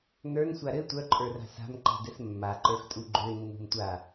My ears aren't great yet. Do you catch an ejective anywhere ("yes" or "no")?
yes